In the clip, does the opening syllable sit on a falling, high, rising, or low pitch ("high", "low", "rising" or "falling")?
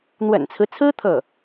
low